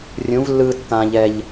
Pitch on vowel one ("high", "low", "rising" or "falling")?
rising